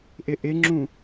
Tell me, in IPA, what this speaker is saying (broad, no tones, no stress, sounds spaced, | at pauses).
ʔ ɪ ʔ ɪ ŋ͡ǁ ũ